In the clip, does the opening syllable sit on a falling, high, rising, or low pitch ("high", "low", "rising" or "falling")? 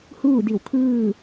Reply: falling